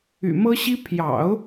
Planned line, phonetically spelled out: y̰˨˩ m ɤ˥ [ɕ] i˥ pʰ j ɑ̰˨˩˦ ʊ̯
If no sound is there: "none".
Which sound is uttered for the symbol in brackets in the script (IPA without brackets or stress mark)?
ɕ